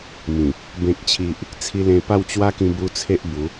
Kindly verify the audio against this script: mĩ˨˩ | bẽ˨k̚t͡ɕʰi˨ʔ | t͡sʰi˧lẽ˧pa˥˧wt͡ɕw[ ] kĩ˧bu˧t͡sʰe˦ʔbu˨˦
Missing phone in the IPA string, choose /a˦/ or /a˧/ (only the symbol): a˦